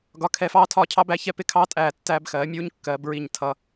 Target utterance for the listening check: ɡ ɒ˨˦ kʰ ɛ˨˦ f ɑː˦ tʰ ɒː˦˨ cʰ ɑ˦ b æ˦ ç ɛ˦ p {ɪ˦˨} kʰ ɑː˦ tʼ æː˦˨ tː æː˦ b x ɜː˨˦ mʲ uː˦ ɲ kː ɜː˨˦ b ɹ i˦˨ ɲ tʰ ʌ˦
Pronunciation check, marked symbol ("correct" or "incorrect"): correct